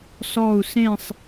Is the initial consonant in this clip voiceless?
yes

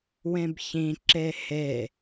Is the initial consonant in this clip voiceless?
no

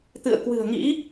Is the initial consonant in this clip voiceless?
yes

